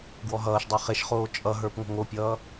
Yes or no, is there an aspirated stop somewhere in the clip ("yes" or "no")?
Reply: no